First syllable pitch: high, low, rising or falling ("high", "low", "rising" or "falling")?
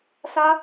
high